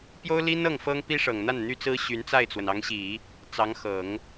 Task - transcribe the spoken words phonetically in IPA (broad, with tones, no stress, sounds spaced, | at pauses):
p j o˥ ʊ̯ l i˥ n ɤ˥˩ ŋ f ɤ˥ ŋ p i˥ ʂ ɤ˨˩ ŋ n̪ a˥˩ n n̪ y˥ t͡s ɹ̩˥ ɕ y˧˥ n t͡s a˥˩ ɪ̯ t͡s w ə˩ n ɑ˧˥ ŋ ɕ i˨˩˦ | t͡s ɑ˧˥ ŋ x ɤ˨˩˦ ŋ